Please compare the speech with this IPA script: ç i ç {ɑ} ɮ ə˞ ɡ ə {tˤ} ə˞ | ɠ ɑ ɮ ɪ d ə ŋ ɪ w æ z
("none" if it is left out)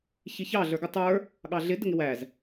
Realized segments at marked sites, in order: ɑ, tˤ

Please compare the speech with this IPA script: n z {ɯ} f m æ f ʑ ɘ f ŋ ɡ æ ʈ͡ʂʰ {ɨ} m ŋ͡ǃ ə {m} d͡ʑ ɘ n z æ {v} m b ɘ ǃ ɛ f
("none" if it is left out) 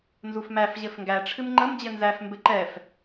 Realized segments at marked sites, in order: u, ɨ, m, f

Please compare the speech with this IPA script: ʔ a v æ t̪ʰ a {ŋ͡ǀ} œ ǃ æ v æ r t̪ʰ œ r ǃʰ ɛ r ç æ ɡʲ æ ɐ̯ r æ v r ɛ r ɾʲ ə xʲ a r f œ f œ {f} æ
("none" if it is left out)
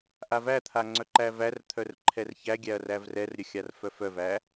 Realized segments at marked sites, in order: ŋ͡ǀ, v

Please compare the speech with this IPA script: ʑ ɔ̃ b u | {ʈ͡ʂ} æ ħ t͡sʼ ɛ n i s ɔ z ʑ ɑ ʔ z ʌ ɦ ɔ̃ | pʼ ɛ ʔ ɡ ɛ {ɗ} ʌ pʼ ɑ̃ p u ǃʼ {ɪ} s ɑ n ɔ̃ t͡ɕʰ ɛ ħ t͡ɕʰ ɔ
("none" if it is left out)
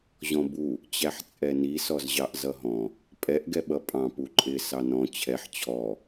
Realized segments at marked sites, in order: t͡ɕ, ɓ, ɪ

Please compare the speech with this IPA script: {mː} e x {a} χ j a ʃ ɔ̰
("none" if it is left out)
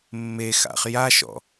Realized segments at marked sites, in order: mː, a̰

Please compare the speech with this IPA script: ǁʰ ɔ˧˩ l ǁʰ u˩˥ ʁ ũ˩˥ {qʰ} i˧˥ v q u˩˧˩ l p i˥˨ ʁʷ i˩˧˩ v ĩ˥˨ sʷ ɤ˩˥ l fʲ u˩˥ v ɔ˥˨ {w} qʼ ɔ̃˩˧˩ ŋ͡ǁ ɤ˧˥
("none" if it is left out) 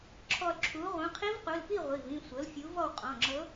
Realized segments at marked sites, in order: qʰ, w

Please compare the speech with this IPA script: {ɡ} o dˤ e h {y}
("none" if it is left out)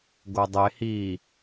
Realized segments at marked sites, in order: ɡ, i

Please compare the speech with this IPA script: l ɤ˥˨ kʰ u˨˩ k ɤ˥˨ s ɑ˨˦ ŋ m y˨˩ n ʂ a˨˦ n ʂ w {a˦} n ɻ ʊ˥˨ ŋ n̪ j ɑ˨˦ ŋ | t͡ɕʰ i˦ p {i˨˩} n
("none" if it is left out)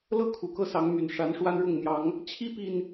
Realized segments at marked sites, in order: a˦, i˨˩

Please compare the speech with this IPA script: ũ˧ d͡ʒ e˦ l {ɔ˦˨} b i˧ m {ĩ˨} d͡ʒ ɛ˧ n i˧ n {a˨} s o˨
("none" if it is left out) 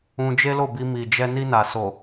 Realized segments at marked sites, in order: o˦˨, i˨, a˨

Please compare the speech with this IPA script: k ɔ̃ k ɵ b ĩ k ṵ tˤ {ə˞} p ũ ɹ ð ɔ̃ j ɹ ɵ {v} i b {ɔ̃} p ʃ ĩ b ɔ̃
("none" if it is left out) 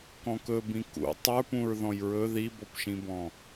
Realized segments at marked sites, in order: ə˞, ð, ɔ

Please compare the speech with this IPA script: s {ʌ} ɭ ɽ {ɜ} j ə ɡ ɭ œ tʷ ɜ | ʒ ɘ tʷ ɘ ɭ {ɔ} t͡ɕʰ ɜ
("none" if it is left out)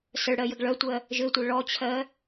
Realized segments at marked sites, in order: ə, ɜ, ɔ

